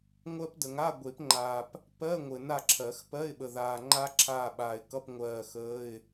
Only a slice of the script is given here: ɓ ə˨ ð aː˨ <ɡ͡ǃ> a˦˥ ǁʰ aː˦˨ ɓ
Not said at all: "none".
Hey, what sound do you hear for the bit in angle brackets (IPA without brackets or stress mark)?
ŋ͡ǃ